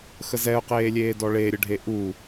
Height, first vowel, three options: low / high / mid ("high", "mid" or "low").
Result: mid